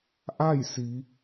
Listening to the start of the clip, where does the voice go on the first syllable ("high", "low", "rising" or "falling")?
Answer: falling